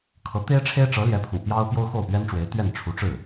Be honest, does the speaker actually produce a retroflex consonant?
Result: yes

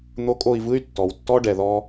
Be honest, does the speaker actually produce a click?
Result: no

